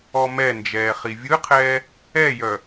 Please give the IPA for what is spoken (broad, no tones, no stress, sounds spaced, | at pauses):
ɔ m ɛ n d͡ʒ ɛː χ i vʲ ɯ qʰ ɛː | ɛ j œ